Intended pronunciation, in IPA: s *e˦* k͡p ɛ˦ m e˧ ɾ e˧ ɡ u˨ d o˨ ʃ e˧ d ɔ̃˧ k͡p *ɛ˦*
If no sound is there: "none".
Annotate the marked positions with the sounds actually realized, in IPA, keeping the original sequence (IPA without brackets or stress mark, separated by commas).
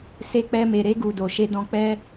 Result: e˦, ɛ˦